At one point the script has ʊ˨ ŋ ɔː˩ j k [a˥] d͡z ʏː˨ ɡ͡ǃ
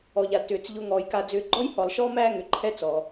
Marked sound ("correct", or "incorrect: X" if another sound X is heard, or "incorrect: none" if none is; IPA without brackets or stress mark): incorrect: a˨